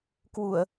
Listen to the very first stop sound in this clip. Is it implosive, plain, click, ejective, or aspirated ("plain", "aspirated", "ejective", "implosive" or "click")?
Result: plain